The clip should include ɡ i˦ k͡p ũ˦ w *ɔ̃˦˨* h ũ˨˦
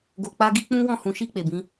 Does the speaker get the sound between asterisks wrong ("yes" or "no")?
no